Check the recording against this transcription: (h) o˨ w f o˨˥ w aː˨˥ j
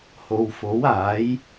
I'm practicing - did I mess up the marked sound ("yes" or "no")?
no